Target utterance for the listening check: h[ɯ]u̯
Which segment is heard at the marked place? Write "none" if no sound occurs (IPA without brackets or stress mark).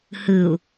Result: ɯ